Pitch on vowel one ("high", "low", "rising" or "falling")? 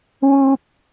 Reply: high